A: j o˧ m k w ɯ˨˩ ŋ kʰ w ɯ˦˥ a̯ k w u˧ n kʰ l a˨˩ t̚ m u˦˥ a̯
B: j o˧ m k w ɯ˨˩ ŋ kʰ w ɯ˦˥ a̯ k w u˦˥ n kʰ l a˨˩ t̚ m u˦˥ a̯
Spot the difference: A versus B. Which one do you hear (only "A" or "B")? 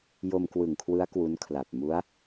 B